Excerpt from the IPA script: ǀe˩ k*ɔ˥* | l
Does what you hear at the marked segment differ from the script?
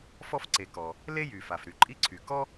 yes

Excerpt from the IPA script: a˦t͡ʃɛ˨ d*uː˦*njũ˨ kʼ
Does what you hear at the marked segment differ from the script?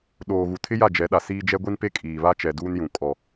no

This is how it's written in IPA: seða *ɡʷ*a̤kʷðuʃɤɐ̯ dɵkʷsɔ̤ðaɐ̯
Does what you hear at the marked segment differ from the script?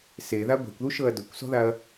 no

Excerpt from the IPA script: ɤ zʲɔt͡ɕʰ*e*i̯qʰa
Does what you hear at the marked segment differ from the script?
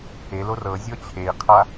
no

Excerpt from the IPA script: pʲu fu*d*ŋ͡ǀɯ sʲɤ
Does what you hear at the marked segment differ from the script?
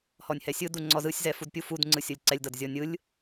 no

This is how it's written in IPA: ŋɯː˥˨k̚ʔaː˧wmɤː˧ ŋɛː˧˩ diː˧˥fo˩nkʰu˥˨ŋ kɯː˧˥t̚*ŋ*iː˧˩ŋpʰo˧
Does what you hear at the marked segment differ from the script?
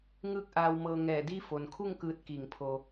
yes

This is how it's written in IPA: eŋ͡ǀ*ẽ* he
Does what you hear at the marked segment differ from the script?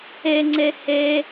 yes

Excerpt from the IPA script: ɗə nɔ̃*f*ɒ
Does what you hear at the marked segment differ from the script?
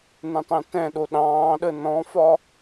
no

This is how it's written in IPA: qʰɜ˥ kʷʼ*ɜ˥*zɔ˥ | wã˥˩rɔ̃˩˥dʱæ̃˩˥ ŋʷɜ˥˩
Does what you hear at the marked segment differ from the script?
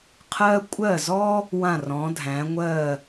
yes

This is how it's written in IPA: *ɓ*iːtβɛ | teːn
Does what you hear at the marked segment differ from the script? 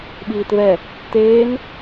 no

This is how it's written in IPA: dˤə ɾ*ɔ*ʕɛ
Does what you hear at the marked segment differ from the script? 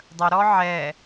no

